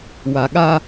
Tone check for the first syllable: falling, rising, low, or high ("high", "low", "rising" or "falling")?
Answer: low